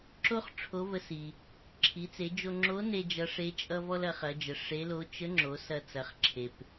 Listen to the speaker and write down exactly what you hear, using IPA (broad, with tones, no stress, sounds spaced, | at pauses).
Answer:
ǁ o˥ χ ʈ͡ʂʰ o˧˥ v ə˧ s i˩ | ǁʰ i˩˧ t͡s e˩˧ d͡ʒ o˧ ŋ͡ǁ o˧˥ n e˥ d͡ʒ ʌ˧˥ ʂ e˧˥ t͡ʃʼ ʌ˥ v ɔ˥ l ɐ˩˧ χ ɐ˩˧ d͡ʒ ə˩ ʂ e˧˥ l o˧˥ t͡ʃ ə˧˥ ŋ͡ǁ o˩˧ s ɐ˧ t͡s ɐ˩˧ χ ǁʰ e˩ p